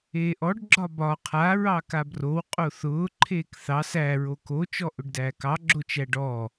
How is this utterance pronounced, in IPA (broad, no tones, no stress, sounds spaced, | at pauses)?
eː ʔ ɔ ɖ ɡ͡ǁ ɒ b ɒ qʰ a ɹ ɑ k a b r o w qʼ o θ ʊː ǃʰ eː k θ ɑ s æ ɹ o k o t͡ʃ ɔ ʔ ʊ ɖ d æː k ɑ ɡ͡ǁ o t͡ʃ æ ɖ ɔ